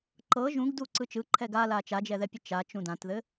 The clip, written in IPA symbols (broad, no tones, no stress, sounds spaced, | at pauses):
ǃ ɤ ʒ ũ ɡ d u ǀ ɯ t͡ʃ ɯ ǃʰ ɛ ɡ a l a t͡ʃ a d͡ʒ ɛ ð ɛ pʲ ɘ t͡ʃ a t͡ʃ ũ d ã t ð ɘ